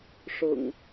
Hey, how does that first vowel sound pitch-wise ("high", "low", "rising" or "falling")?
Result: low